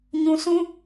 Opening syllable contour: low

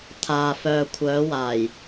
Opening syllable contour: low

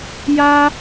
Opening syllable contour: high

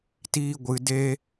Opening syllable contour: high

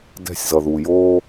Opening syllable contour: falling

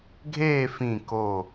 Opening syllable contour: falling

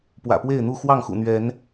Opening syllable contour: low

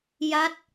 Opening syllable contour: falling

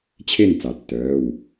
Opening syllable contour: falling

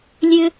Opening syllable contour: high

